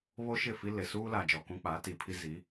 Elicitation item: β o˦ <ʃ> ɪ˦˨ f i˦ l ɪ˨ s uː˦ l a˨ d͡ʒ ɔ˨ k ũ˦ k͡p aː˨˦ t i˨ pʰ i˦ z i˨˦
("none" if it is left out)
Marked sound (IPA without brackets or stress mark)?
ʃ